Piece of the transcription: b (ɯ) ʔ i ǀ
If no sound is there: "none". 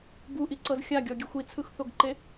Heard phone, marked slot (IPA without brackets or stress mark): u